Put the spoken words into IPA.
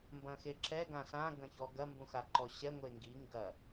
m b ɐ̃ x e ǁ ɛ ɡ ã s ã ɡ ɐ̃ ç ɔ ɡ ɐ m b ũ x a ǃ ɔ ɕ ɛ ŋʷ e ŋ ɡ i ŋ ɡ ɐ

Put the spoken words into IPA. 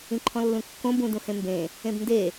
ĩ ǃʰ ɔ̃ lː ũ kː õ b ũ d ũ h ẽ m b ẽ | ẽ b n d e

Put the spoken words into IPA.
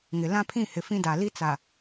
ŋ ɪ˨ l ã˦ pʰ ĩ˦˨ h ɪ˨ f ĩ˦ d a˨ l i˦ t͡s a˨

